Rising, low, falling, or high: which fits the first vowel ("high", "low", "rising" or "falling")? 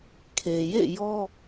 low